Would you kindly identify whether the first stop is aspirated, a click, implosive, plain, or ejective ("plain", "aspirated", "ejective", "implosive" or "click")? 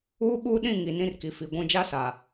implosive